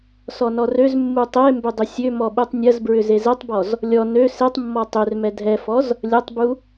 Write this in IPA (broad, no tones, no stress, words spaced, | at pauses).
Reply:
sɔnɔrøzmːu tˤembʏ dˤʏsʲømɔ ɓutˤnʲɐzbɹʏ zezɛtˤbɔz | lʲɔ nø setˤmːɔ tˤørmɛ dʱɛfɔz | lʲɐtˤbu